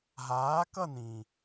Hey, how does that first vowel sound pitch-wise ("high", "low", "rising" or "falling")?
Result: rising